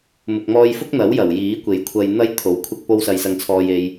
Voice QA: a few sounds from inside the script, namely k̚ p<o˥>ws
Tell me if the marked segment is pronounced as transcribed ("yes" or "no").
yes